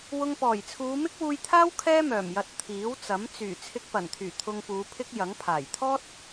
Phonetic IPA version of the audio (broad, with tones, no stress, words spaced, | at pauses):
wʊ˧ŋpɔː˨˩jt͡sʰuː˨˧ mɪ˥k̚wuː˧jt̪ʰaː˥w kʰɛː˥mœː˨˩mjɐ˨t̚ t̪ʰiː˨˥wt͡sɐ˨˥m t͡syː˨˩ t͡sʰɪ˧k̚pɐ˨˩nt̪ʰyː˨˩ t̪ʰʊ˧ŋpuː˨˧ pʰɪ˥k̚jɐ˨˥ŋ pʰaː˨˩jt̪ʰɔː˥t̚